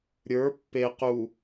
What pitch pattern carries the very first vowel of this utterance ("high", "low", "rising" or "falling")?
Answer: rising